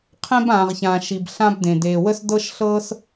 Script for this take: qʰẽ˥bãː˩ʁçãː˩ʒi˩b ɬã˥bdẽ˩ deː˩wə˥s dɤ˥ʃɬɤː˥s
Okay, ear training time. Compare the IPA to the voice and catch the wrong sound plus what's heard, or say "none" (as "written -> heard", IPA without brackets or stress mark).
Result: ʒ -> ʃ